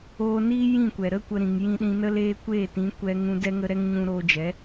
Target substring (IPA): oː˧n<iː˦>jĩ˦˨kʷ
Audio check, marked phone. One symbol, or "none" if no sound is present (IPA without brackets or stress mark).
iː˦